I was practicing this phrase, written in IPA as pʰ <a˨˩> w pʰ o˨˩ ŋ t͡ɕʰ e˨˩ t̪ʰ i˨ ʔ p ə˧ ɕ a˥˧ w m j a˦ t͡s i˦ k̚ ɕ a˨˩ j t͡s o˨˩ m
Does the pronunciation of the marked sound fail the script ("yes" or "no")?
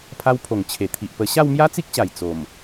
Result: yes